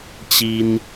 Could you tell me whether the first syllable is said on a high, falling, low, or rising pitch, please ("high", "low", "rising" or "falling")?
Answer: high